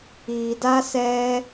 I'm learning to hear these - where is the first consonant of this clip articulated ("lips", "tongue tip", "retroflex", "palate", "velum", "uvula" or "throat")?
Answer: tongue tip